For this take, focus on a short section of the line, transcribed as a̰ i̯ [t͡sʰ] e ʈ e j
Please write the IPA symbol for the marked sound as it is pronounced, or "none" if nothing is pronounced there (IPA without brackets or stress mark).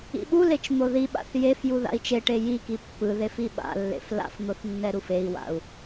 t͡ʃ